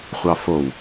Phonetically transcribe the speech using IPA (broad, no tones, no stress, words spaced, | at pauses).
χʷɑfow